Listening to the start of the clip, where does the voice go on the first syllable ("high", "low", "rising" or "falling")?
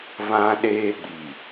high